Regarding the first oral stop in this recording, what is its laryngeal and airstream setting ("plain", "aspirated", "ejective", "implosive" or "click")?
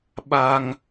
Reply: implosive